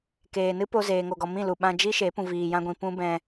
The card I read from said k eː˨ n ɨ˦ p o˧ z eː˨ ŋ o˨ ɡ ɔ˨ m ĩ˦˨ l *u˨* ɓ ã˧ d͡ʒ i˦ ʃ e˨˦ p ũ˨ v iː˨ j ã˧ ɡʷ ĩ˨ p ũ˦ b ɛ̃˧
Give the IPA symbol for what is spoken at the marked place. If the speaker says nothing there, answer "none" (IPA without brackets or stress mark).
u˨